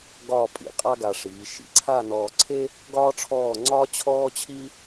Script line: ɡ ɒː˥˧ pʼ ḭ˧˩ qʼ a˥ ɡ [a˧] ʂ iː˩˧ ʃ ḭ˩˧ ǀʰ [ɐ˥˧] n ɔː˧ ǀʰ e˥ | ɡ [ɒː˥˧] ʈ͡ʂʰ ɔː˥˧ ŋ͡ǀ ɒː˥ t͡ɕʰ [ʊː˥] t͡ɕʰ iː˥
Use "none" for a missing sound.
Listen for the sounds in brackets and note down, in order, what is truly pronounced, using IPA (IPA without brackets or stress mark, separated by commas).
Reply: a˧, a˥˧, ɒː˥, ɔː˥